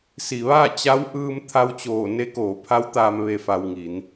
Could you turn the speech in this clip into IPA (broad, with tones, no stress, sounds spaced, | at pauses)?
s i˩ ʋ aː˥˨ t͡ɕ a˧˥ w ʔ ɯː˧ m t̪ʰ a˧ w t͡ɕ oː˧˩ n e˧˥ k oː˩˧ pʰ a˧˥ w t̪ aː˧ m ʋ e˩ f a˩ w ŋ i˩˧ n